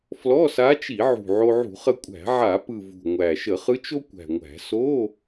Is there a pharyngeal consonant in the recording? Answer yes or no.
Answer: yes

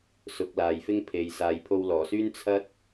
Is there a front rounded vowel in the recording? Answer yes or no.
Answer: yes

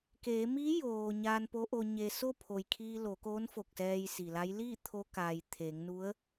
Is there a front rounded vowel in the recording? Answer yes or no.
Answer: no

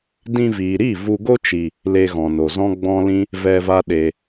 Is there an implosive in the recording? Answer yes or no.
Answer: yes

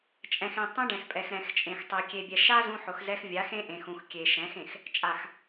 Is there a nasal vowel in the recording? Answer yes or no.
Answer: yes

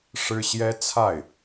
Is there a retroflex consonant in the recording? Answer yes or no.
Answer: yes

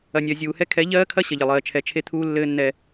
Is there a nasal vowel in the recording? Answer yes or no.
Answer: no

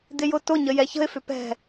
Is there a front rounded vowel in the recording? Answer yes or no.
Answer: yes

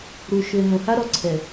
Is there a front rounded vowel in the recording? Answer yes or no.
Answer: yes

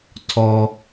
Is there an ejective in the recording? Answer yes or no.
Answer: no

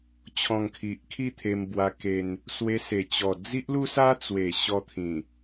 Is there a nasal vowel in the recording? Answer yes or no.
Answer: yes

